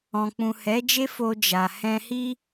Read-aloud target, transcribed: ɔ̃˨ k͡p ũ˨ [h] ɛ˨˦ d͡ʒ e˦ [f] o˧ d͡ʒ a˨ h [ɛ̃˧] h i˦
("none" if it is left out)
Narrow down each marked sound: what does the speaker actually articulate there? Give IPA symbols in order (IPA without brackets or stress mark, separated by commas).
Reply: h, f, ɛ̃˧